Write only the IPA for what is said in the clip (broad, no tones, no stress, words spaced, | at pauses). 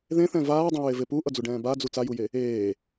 ðẽθɛ̃ vaːdˤũɹeve puʔʌd͡zuɖɛ̃ː bad͡zu t͡sajuje | eː